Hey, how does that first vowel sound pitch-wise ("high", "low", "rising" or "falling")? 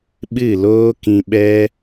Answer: falling